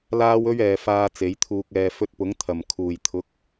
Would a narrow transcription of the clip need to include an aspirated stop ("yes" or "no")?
yes